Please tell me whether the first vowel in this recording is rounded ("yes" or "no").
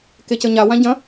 no